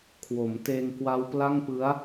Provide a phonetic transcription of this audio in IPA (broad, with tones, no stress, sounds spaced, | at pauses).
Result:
kʰ w o˩˦ m t eː˧ ŋ k w a˦˥ w p l a˥˩ ŋ p ɯ˦˥ a̯